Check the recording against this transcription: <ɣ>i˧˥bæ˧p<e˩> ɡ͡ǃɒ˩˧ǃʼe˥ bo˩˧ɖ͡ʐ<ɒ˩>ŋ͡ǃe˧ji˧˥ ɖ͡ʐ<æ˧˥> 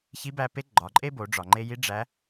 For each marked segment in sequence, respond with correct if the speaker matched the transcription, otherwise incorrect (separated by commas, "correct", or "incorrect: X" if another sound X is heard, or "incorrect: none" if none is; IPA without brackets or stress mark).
incorrect: ç, incorrect: e˧˥, correct, correct